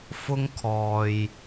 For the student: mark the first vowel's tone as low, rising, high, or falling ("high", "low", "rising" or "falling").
high